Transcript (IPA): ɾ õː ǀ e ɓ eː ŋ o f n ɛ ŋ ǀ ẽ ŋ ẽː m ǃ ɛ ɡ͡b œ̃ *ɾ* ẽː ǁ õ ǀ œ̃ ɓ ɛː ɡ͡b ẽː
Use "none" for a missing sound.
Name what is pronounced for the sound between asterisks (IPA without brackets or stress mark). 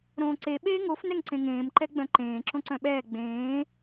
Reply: ǃ